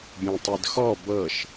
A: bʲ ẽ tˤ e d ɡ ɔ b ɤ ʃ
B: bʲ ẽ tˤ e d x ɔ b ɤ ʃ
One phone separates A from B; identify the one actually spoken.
B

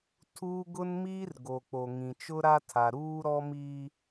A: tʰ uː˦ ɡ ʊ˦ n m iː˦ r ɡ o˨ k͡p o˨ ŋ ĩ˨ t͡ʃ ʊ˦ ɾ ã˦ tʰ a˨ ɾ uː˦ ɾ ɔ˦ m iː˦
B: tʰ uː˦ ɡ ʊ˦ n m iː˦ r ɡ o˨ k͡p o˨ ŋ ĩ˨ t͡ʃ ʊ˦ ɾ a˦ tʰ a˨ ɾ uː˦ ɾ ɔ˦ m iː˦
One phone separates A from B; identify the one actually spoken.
B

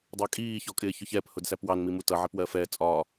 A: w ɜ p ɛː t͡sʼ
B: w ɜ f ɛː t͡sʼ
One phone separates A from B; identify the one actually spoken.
B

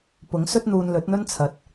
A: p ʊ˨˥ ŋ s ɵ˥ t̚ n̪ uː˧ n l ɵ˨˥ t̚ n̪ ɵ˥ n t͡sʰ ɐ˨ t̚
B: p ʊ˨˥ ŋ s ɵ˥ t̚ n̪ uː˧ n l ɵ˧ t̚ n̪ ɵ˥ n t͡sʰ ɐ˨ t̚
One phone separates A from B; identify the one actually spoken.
A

